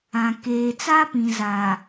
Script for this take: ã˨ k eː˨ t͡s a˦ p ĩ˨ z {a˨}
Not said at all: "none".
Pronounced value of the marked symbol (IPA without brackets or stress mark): a˨